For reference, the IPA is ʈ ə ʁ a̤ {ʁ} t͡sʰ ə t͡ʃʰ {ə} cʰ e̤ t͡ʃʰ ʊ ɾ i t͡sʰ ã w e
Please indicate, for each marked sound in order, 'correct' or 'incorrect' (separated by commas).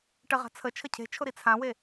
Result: incorrect, correct